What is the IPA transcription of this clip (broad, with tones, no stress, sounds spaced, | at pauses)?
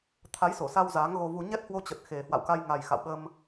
t̪ʰ a˨˦ j s o˧˩ s a˧ w z aː˨˦ ŋ ɣ o˧ v u˧ ɲ ɛ˦˥ t̚ h w o˧ t͡ɕ ə˨˩ t̚ x e˨˩ h w a̰˧˨ w k a˧ j ŋ a˨˩ j x a̰˧˨ w ɓ ə˧ m